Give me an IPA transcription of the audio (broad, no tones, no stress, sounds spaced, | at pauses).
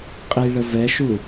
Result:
qʼ i ɭ ə v ɛ ʃ u